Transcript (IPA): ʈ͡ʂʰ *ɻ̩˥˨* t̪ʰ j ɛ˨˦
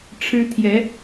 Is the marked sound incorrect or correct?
incorrect